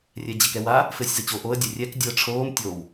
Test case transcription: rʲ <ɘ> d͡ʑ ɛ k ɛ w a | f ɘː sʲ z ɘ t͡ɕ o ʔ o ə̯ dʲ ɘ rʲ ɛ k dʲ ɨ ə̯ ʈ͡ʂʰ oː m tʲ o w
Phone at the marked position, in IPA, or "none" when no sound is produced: ɛ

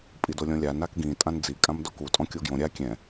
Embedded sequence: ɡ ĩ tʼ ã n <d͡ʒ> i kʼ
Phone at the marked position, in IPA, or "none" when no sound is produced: d͡z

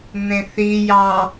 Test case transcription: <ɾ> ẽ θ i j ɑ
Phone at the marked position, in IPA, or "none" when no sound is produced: n̪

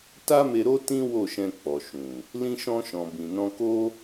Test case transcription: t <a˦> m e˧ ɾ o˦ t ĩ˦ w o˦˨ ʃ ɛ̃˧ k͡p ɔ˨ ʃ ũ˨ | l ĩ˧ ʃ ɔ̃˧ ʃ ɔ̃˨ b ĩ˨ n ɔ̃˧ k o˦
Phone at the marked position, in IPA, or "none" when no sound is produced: a˦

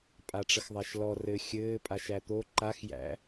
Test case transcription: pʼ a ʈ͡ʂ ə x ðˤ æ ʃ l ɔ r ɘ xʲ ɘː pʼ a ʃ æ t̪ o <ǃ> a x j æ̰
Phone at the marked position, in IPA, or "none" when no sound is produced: ǃ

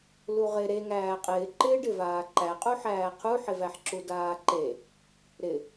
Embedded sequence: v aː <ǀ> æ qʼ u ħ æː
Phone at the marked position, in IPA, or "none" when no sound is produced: ǃ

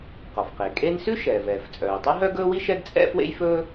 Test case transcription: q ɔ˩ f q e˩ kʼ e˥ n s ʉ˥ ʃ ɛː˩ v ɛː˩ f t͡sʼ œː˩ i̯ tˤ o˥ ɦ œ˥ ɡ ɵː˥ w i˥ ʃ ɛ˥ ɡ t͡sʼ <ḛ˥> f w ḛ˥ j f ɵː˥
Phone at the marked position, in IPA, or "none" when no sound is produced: ɛ̰˥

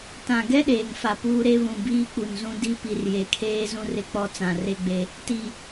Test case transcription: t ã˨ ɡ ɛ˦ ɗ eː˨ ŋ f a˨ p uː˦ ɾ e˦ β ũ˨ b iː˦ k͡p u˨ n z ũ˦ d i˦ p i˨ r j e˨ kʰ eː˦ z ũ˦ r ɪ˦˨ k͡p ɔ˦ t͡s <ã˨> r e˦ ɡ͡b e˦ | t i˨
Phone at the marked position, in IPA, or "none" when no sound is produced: ã˨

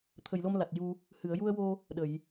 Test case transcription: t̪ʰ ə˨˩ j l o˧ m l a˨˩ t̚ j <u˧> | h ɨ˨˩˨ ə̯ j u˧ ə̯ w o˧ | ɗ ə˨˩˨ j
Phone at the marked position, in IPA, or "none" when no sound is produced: u˧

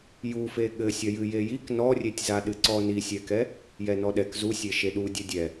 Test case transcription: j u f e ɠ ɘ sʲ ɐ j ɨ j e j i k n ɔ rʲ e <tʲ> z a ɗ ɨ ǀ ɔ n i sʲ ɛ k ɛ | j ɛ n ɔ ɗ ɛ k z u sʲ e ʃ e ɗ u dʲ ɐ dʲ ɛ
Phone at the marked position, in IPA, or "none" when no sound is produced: tʲ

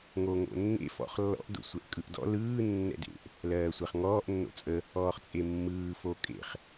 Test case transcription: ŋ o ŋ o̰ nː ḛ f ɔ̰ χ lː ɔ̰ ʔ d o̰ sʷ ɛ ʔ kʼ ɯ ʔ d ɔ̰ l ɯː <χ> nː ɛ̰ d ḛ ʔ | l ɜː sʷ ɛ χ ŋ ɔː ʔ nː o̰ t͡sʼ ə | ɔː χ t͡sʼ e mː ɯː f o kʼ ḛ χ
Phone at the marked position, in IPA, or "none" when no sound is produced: none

